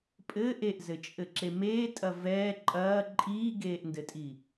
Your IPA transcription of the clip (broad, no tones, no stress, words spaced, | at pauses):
pʼɘ ʔeʔzɘt͡ʃʼɘǁe meːtʼɐ vɛː ǃʼɐː ǃʼiːɡeːʔndɘtʼi